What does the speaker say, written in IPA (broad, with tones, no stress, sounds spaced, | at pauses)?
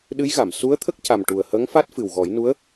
ɗ ɨ˧˥ j ɣ a˨˩˨ m s u˧˥ ə̯ t̪ʰ ə˦˥ k̚ c a˨˩ m ʈ u˨˩ ə̯ h əː˧˥ ŋ f a˦˥ t̚ f ɨ˨˩ w ɣ ɔ˨˩˦ j n u˧˥ ə̯